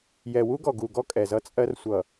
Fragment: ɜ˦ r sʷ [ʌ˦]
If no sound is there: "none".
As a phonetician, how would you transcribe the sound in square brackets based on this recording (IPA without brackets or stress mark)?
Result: ʌ˨